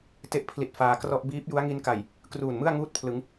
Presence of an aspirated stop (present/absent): present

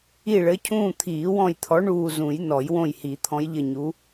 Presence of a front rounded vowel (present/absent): absent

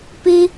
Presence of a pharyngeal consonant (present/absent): absent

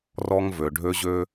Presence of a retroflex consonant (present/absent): present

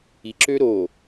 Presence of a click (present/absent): present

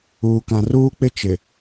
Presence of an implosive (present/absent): absent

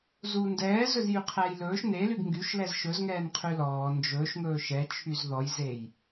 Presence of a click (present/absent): absent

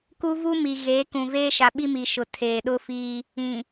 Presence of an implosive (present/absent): present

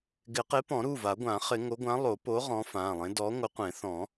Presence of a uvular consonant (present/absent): present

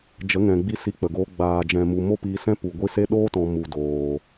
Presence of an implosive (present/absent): present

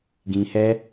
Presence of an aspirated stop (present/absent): absent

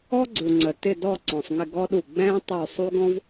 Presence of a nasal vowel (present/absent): present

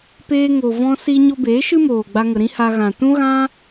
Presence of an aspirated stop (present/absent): absent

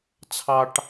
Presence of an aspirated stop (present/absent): present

